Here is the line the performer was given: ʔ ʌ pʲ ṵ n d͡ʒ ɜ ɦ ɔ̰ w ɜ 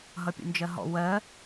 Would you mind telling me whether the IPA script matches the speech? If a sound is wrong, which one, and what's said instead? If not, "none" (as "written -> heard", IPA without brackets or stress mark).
ʔ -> ɦ